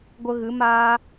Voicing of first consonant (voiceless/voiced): voiced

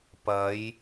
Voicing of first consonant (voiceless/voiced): voiceless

